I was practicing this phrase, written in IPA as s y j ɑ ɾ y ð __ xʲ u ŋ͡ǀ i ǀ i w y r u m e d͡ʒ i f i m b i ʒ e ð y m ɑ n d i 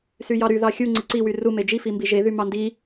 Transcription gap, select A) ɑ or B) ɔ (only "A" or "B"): A